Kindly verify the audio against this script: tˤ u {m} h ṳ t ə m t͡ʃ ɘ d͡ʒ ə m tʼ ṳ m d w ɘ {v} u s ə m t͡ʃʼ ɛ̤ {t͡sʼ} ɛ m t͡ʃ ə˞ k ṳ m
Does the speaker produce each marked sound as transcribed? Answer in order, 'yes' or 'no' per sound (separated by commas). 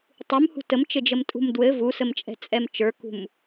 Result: yes, yes, yes